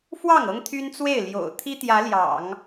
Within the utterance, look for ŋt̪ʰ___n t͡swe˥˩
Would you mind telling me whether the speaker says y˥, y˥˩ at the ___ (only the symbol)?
y˥